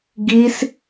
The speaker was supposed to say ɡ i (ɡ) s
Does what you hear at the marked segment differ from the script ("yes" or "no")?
yes